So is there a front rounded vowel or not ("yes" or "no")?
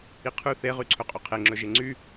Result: yes